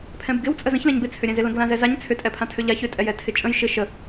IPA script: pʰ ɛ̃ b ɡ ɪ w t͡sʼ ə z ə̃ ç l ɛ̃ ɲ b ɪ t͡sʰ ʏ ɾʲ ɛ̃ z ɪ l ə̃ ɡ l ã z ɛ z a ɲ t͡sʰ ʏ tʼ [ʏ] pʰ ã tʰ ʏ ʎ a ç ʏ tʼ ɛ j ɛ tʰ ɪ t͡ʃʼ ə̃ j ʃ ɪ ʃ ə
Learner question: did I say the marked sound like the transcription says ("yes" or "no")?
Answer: no